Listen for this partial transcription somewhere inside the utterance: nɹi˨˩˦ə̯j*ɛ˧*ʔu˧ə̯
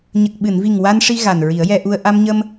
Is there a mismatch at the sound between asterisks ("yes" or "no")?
no